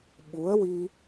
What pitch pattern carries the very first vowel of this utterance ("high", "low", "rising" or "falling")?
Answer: rising